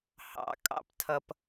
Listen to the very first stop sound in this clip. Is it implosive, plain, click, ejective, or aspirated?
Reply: ejective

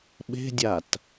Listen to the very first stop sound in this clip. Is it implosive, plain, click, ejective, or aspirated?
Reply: implosive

